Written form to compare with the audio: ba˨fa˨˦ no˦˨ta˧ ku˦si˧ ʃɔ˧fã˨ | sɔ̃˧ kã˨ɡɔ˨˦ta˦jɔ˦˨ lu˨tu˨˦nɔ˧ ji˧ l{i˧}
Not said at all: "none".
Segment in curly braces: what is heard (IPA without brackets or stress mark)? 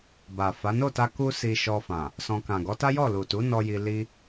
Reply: i˦